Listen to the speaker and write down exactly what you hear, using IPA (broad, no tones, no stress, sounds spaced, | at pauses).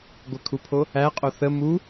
ɡʷ ə kʰ u pʰ o | æ qʼ o θ ə m u